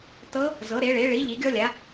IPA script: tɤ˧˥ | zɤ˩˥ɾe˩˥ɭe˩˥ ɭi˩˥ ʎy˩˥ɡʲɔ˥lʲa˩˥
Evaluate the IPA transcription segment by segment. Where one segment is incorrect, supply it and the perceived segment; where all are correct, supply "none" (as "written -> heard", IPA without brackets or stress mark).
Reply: y˩˥ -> i˩˥